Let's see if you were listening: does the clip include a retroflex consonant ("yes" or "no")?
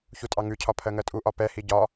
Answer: no